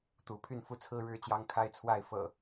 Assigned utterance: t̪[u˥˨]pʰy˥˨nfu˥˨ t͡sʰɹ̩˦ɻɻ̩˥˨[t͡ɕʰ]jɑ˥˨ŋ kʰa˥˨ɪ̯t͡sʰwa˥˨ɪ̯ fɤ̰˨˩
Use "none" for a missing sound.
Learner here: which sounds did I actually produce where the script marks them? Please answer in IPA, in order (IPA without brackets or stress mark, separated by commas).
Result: u˨˦, t͡ɕ